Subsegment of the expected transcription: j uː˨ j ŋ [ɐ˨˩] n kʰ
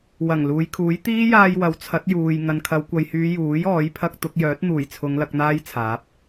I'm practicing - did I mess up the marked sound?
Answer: yes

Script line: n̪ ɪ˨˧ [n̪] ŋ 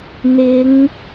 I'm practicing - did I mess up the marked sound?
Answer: yes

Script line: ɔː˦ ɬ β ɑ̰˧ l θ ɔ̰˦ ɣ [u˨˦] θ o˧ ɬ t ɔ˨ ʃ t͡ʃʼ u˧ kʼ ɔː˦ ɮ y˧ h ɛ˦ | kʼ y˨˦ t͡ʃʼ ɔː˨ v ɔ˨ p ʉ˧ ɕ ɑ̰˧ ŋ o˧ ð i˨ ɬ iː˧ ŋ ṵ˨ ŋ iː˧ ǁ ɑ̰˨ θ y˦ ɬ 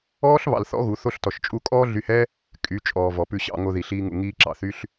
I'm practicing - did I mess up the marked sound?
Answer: no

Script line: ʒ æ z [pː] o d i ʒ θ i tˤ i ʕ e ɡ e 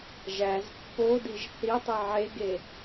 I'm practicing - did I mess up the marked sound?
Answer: no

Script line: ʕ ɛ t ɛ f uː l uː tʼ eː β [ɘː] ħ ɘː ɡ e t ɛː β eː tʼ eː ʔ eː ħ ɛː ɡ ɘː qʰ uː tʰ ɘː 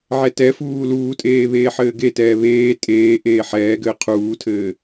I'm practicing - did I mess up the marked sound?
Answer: yes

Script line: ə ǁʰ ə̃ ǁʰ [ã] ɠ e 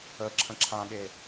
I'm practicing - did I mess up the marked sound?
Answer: no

